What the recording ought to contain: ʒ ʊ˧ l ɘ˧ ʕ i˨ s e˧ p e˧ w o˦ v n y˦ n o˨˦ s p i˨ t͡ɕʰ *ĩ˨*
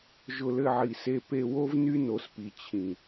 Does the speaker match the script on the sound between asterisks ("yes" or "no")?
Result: yes